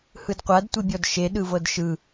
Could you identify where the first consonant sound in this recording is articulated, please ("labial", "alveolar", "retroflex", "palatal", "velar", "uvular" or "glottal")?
glottal